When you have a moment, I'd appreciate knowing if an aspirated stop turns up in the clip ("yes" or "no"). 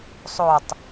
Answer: no